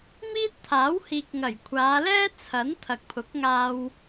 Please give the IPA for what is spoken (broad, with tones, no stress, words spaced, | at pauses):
miː˥t̚t̪ʰaː˨˥whiː˨k̚ŋɐ˨˩j kʷʰaː˨˧lɛː˥ t͡sʰɐ˨˥n t̪ʰɐ˨k̚pʰʊ˨˥k̚ŋaː˧w